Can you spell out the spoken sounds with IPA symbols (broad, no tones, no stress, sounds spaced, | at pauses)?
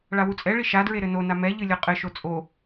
ɭ a w u t͡sʼ ɛ ɭ i ʃ a d ɹ e ɾ ɘ n o n a m ɛ ʎ ɨ lʲ ɔ qʼ ɘ ʃ o t͡sʼ o